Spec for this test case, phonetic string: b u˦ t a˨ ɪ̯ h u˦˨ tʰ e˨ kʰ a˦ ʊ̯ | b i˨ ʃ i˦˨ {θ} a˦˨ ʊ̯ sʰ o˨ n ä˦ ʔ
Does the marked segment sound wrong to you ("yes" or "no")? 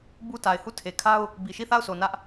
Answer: no